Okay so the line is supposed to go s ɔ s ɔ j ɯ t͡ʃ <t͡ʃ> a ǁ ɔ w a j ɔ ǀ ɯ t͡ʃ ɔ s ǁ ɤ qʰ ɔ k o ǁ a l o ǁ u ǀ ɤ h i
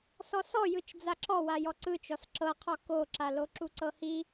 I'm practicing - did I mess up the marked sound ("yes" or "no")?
yes